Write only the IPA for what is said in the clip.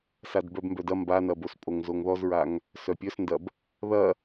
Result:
sadbœbmbœdɐ mbanɐbos pʼoŋzoŋðɔzɹaŋ | sœpʲœsndɐb | ðɐ

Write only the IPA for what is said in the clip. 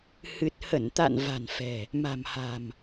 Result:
hɨ˨˩t̚hə˧˩nt̪a̰˧˨n va̤˨˩nfɛ̤˨˩ | ma̤˨˩mha̤˨˩m

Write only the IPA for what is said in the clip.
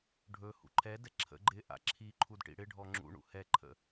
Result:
ɖʱɵ hṵǃʰɛdɛ ǁʰə̰ ɡ͡ǃɪʔa̰ ǁʰi ǃʰudʈḭɽɪɖʱɔ ŋ͡ǁṵɳṵ hɛǃʰə̰

